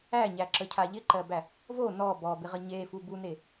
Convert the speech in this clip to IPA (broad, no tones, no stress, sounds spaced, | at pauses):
æ ɲ æ ǁ ə cʰ a ʎ ɪ ǃ ɜ b æ | v o n ɔ b ɔ b ɪ ʁ ə ɲ e f u b u n e